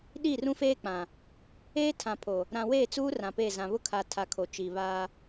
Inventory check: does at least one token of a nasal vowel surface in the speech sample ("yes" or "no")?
yes